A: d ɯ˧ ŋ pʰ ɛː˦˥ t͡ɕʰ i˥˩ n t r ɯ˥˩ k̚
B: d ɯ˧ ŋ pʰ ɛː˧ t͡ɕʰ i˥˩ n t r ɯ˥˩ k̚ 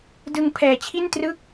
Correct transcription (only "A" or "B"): B